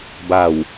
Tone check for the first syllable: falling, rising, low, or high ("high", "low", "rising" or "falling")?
low